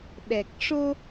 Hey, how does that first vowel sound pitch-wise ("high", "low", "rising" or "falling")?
low